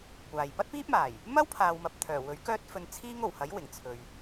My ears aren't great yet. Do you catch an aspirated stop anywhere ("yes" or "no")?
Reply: yes